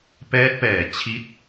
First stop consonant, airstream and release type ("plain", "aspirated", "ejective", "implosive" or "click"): plain